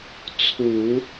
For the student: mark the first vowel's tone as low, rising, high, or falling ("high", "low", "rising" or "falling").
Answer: low